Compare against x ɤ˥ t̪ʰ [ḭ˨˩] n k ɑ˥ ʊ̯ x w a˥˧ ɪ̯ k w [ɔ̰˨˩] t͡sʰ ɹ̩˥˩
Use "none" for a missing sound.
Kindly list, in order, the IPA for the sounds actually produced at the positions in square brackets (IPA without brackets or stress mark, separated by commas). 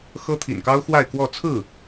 ḭ˨˩, ɔ˥˧